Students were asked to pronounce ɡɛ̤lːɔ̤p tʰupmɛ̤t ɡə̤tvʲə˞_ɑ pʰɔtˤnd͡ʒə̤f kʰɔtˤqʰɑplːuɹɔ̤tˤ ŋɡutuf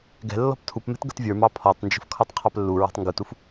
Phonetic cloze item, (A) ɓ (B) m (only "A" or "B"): B